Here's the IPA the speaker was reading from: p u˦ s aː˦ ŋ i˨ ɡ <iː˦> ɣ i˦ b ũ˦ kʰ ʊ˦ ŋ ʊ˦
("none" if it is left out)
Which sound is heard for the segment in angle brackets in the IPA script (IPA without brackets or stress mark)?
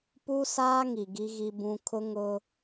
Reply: i˦